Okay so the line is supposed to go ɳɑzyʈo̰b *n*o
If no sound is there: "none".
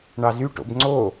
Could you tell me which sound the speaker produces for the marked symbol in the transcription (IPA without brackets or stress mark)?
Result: ŋ͡ǀ